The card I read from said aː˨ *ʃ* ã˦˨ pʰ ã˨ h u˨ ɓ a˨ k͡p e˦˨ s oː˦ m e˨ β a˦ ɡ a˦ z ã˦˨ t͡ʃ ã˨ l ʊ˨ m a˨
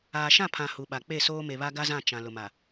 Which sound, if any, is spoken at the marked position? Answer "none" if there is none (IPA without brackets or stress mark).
ʃ